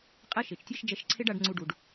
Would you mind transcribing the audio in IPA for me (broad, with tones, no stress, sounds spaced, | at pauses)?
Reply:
qʼ ɛ˥ ʃ e˩ t͡ʃ tʲ ɛ˥ ʃ d͡ʒ ɛ˧ ʃ ǀʰ e˥ ɖ a˧ ɖ ŋ͡ǀ u˧ ɖ u˩ ɖ